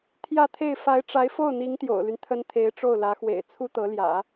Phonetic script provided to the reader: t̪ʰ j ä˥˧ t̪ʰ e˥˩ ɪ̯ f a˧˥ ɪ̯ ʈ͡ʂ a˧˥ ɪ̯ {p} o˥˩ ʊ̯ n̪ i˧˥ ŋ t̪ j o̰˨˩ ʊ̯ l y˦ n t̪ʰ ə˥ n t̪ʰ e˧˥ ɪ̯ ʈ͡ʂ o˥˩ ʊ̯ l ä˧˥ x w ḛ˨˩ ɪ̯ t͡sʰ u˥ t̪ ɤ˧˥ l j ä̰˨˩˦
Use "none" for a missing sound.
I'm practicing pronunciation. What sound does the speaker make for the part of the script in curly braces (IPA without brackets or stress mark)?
f